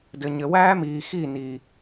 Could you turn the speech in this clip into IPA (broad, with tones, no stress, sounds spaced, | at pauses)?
d ɘ˨ ɲ ɘ˨ w æː˦ m iː˨ x i˦˨ n i˨